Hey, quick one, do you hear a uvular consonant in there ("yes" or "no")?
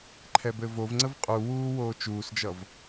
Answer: yes